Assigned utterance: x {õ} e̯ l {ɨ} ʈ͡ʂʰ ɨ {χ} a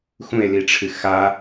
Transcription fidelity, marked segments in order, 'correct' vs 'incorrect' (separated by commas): incorrect, incorrect, incorrect